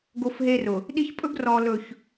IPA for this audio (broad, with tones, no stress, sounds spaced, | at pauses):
ɡ o˦ f ɦ eː˦ r ʊ˨ | ɗ i˦ ç pʼ ɵ˦ ɡ r ɔː˨ l ɵ˨ ç